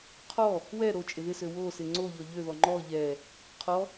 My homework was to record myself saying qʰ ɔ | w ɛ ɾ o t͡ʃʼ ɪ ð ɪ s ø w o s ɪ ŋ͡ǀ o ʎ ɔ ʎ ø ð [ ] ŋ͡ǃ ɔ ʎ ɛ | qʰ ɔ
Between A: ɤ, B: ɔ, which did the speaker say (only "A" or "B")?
B